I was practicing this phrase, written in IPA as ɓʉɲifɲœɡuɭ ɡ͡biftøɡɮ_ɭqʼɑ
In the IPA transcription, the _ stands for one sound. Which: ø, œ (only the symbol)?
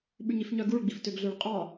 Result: ø